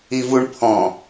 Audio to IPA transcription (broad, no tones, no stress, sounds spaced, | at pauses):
i v u ɳ pʰ ɔ̃